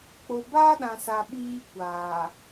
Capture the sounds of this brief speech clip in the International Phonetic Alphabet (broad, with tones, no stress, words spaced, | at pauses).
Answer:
k͡po˨baː˦ɗã˨sa˨ ɓiː˦kʷaː˨